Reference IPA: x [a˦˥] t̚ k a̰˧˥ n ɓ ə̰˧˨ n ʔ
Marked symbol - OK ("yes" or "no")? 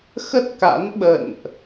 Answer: no